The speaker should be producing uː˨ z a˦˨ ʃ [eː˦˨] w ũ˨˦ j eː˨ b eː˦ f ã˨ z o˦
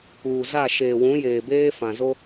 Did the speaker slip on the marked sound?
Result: yes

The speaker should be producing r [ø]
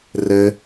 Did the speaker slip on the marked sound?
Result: yes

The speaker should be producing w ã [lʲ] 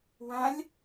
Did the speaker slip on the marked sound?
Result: no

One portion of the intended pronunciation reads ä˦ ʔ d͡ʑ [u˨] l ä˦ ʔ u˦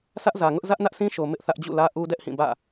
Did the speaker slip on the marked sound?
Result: yes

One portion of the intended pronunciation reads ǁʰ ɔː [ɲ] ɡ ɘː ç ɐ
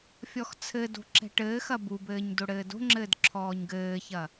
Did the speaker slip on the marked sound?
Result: no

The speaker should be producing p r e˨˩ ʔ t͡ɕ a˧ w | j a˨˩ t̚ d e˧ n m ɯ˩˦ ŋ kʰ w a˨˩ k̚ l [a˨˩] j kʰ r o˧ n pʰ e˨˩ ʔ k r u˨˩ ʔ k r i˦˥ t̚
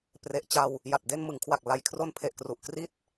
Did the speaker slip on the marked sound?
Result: no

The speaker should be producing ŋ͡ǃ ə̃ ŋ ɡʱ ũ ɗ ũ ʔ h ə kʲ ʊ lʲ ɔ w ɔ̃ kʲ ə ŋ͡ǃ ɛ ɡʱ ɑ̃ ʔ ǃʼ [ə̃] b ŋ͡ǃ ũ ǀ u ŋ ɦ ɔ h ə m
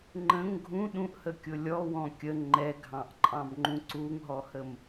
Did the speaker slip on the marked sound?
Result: yes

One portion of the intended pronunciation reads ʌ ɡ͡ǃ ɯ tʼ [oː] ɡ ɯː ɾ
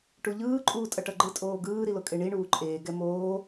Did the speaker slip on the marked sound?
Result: no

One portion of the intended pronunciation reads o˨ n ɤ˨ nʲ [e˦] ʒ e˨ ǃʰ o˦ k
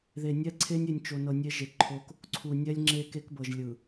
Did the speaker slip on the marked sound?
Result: no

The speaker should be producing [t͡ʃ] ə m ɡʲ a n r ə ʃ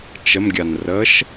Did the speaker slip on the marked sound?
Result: no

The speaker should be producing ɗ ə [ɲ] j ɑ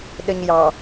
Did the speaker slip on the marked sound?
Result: no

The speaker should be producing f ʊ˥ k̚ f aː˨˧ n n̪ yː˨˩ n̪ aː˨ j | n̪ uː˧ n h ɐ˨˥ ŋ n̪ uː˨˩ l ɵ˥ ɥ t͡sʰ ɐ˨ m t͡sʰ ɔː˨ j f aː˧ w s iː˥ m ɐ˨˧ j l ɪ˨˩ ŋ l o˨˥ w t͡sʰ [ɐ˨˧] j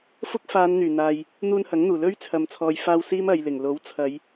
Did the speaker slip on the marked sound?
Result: no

